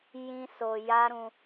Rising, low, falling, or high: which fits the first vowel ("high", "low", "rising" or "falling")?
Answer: high